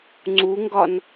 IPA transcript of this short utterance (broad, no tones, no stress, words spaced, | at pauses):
ŋ͡ǀuŋɡɒn